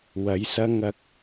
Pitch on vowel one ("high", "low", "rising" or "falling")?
rising